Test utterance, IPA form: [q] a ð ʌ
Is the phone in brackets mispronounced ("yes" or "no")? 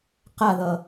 no